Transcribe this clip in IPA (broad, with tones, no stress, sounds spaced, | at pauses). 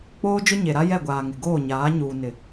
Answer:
k͡p oː˦ d͡ʒ ʊ˦ ɲ e˨ ɾ a˦ j ɛ˦˨ ɡʷ aː˨ ŋ ɪ˨ ɡ oː˦˨ ɲ aː˨˦ ɲ uː˨ n ɪ˨